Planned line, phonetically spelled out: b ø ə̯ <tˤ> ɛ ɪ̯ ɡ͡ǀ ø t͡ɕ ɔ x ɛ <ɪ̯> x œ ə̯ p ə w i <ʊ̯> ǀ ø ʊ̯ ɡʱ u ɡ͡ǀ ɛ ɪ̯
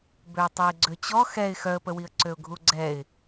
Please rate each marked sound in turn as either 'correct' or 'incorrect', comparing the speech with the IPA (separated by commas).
correct, correct, incorrect